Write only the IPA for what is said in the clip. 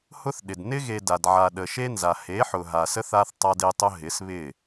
h ʊ˦ θ ɗ ɪ˨ d n ɪ˦ ɣ e˨ d a˨ d ʕ a˨ ɗ ə˨ ʃ e˦ n z a˨ h e˨˦ ħ ʊ˨ ɦ a˨ s ə˦ θ a˦ θ tˤ a˦ d e˦ tˤ ʊ˦ ɦ ɪ˨˦ s β ɪ˦˨

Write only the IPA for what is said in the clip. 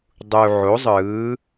dˤ u˩ ʕ o˩˧ zˤ ɯː˩˧

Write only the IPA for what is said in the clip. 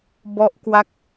b ɔ˦˥ ʔ k w a˦˥ k̚

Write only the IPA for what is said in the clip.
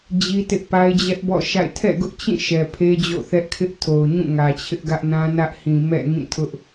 d͡ʑ i˦ t ɪ˦ ʔ p a˦ ɪ̯ d͡ʑ ɛ˦ ʔ b ɔ̰˦˨ ʃ a̰˦˨ ɪ̯ tʰ ɛ̰˦˨ ɡ ʊ˦ ʔ t͡ɕ ĩ˦˨ ʃ ɛ˨ pʰ e˦ d͡ʑ o̰˦˨ θ ɛ˦ ʔ kʰ ɪ˦ ʔ tʰ o˨ ʊ̯ ɲ ũ˦˨ ŋ ä˨ t͡ɕʰ ɪ˦ ʔ ɡ ä˦ ʔ n ã˦ n ä˦ ʔ h ĩ˨ m ɛ̰˦˨ ŋ ĩ˦˨ tʰ ʊ˦ ʔ

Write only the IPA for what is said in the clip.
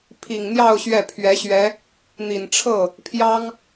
pʰ i˨˩ ŋ n̪ j ɑ˥˧ ʊ̯ ɕ ɥ ɛ˥˩ pʰ ɥ ɛ˧˥ ɕ ɥ ɛ˧˥ | n̪ i˨˩ n ʈ͡ʂʰ ɤ˥˩ | pʰ j ɑ˥ ŋ

